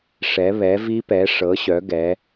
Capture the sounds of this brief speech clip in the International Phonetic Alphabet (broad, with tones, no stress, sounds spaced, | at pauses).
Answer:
ʂ ɛ˨˥ β ɛ˨˥ v i˦˥ p ɛ˨˥ ʂ ɤ˨˥ ɕ œ˨˥ ɡ ɛ˨˥